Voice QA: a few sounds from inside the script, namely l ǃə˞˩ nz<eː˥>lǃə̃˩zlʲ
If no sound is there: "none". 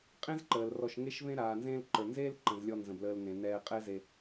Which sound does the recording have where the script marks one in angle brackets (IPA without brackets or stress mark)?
eː˥